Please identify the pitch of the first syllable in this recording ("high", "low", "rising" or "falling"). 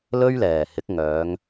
high